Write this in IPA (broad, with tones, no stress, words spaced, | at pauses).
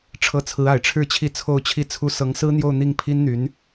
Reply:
ʈ͡ʂʰɤ˧˥t͡sʰɹ̩˧˥a˨˩ɪ̯ʈ͡ʂʰɻ̩˥˧ t͡ɕʰi˥˧t͡sʰo˥˧ʊ̯t͡ɕʰi˥˩t͡sʰu˥ sɤ˧˥ŋsɹ̩˥n̪jo˥˧ʊ̯ n̪i˥˩ŋpʰi˥nn̪y˧˥n